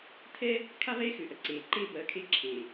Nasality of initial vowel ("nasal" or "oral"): oral